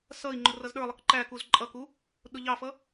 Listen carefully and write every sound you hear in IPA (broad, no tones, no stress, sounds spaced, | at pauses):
s ʌ i̯ ŋ͡ǃ ʊ r ʌ z ɗ ə˞ lˠ ə k ǃ æ k u z ǃʼ ʌ k u | ɗ ʊ ʎ ɑ f ʌ